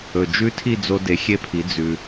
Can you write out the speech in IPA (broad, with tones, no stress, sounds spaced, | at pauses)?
ɵ˩ d͡ʒ ʉ˦˥ tʰ i˥˧ d͡z o˧ d e˩˧ xʲ e˧ pʰ i˩˧ d͡z ʉ˩